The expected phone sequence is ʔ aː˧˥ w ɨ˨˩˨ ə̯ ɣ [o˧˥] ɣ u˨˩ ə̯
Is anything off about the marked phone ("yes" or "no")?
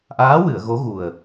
no